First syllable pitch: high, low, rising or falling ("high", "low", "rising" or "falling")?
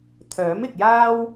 rising